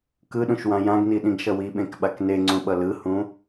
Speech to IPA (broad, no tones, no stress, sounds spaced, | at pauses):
k ɯ ɗ ũ ʃ w ã j ã ɡ n i ɗ ĩ ɡ ʃ ʌ w i ɓ ẽ k ɓ a k n e ŋ͡ǀ ũ ɓ ʌ l ɯ h ũ